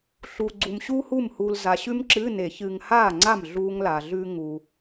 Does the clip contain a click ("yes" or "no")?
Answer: yes